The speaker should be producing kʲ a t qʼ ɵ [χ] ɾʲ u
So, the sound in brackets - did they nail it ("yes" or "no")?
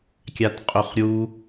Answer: yes